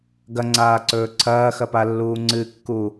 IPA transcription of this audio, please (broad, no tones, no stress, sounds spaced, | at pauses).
ɡ ɐ ŋ͡ǀ aː ǀ ɵː ǀʰ ɐː x ɐ p a lː uː ŋ͡ǀ ɨ kː u